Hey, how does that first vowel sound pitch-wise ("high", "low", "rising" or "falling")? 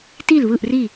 falling